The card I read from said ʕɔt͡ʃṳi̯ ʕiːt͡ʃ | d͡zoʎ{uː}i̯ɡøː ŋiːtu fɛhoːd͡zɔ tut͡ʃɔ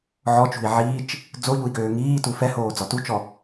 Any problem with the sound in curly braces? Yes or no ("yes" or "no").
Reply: yes